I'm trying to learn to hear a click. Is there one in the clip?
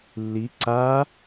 yes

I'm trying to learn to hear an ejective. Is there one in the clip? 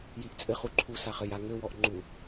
yes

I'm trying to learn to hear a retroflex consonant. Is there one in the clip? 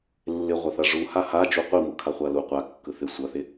yes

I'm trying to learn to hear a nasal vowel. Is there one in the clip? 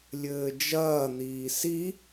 no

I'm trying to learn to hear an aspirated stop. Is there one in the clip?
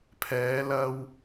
yes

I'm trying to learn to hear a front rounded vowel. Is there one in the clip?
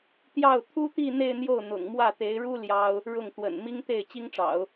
no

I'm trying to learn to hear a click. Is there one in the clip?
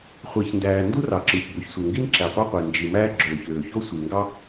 yes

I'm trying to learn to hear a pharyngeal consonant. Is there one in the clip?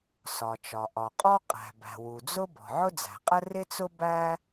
yes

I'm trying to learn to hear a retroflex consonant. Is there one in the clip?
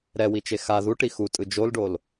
yes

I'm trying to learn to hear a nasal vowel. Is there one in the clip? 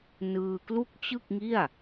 no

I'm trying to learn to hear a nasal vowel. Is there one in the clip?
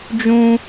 yes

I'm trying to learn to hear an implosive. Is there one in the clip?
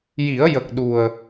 yes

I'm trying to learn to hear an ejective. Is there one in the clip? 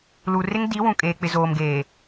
yes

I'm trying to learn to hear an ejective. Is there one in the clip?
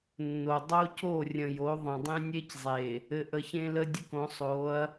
no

